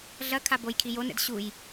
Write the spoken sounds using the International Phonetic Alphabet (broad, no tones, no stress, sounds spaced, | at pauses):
ɮ ɐ kʰ a b o j kʰ i j o n ɛ̰ d ɕ u j